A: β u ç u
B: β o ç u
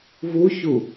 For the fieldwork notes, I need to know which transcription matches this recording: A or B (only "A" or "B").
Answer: A